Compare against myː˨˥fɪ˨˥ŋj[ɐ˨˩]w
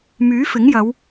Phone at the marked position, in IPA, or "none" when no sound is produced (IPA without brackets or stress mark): ɐ˨˧